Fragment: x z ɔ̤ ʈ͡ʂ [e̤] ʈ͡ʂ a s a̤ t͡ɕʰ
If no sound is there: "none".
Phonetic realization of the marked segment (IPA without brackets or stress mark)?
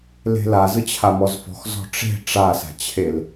e̤